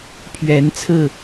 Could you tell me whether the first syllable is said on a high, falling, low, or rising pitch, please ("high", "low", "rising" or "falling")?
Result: rising